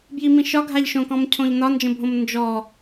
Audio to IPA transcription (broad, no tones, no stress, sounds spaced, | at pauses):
b j i m ĩ ʃ ɒ ɡʱ a ʎ ʃ õ k ɔ̃ m cʰ õ ʎ n ɒ n d͡ʒ ə̃ bʱ õ m n d͡ʒ ɔ